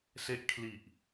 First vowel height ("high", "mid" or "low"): mid